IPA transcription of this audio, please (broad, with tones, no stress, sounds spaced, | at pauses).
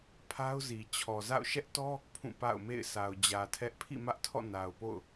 pʰ a˦ ʊ̯ z i˨ t͡ɕʰ ɔ˨ z a̰˦˨ ʊ̯ ʃ ɛ˦ ʔ t ɔ˦ | pʰ ũ˦˨ p a̰˦˨ ʊ̯ m ḛ˦˨ ɪ̯ sʰ a˨ ʊ̯ d͡ʑ ä˨ tʰ ɛ˦ ʔ pʰ ḭ˦˨ m ä˦ ʔ tʰ ɔ̰˦˨ n a˨ ʊ̯ p o̰˦˨ ʊ̯